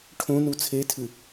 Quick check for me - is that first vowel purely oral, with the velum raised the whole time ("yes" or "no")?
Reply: no